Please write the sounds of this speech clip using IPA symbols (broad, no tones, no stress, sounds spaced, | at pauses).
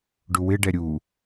ɖ u w ɪ ɖ ɛ ɾʲ u